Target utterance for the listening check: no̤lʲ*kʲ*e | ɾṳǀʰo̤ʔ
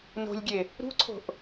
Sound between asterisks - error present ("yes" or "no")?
yes